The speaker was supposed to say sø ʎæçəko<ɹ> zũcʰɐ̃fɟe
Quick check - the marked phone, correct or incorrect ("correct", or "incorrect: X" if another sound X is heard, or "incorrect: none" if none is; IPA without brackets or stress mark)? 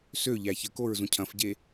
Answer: correct